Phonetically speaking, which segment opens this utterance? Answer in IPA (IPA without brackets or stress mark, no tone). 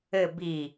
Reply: ɘ